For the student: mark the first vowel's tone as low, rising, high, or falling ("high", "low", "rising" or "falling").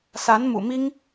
rising